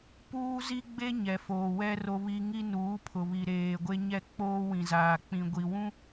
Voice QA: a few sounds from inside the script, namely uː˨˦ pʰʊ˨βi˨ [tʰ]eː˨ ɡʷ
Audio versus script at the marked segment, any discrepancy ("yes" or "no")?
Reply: yes